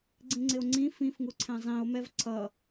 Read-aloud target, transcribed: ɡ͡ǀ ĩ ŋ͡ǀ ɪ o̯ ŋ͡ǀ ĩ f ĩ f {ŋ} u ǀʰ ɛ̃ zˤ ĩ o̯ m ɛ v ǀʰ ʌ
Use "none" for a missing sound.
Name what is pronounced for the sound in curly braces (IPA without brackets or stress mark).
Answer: ŋ